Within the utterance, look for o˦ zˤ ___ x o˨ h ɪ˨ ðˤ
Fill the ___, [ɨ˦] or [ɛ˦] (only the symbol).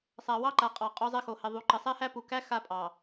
ɛ˦